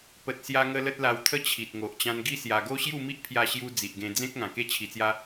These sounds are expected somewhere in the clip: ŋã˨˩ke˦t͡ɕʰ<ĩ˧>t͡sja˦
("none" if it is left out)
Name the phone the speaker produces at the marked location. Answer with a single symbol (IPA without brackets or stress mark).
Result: i˧